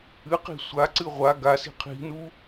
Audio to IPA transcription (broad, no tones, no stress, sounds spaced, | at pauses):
ɨ q i̤ sʷ a ǀ ɨ ʁʷ a ɡ a s i̤ qʰ i̤ n u